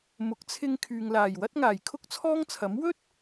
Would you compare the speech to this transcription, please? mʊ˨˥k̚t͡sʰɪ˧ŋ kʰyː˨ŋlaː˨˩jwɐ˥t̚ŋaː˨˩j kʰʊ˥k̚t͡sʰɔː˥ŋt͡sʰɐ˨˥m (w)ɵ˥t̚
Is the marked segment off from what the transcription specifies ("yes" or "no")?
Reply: no